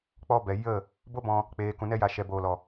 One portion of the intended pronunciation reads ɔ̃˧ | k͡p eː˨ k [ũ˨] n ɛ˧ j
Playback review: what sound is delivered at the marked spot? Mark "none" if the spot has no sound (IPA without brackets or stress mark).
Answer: ũ˨